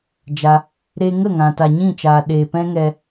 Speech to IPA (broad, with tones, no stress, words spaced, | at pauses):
d͡ʒa˧ | ɾe˧ŋə˦˨ ŋã˨ta˨ ɲĩ˦˨t͡ʃaː˨ɗeː˨pɛ̃˦ ŋɛ˧